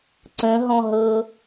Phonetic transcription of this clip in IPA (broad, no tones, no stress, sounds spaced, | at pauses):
ǀ ə̃ ɦ ɔ̃ ɦ ɤ